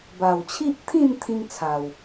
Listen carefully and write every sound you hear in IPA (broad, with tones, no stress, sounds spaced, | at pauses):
b a˨˩ w t͡ɕʰ i˦ ʔ t̪ʰ ĩ˥˧ n t̪ʰ ĩ˦ ŋ t͡sʰ a˨˩ w